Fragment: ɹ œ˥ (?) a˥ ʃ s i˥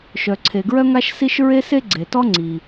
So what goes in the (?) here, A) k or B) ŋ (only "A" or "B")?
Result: B